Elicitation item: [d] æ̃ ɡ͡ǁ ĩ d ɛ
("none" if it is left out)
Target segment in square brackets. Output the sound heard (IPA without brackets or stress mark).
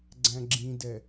ɡ͡ǀ